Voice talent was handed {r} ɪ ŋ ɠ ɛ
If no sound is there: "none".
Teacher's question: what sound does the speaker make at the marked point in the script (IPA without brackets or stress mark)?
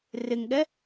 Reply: r